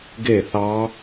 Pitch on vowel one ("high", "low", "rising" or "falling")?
falling